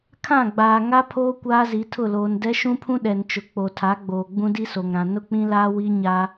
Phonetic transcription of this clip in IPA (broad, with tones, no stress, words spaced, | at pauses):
kʰã˦˨ɡ͡baː˨ŋa˦ pʰoː˦ kʷaː˦zi˨˦tʰʊ˦˨ loː˨ndɛ˦ʃũ˦pʰũ˦ ɗɛ˨nt͡ʃʊ˨ k͡po˨tʰa˨˦ɡ͡boː˨ ɡ͡bũ˦di˦so˨ŋɾã˨ nʊ˦k͡pĩ˦laː˦ wi˦ɲa˦